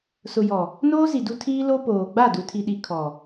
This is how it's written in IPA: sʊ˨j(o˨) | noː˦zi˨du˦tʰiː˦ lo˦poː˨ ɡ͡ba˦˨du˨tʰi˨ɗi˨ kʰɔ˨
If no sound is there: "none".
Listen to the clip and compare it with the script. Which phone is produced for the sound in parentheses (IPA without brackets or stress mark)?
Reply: ɔ˨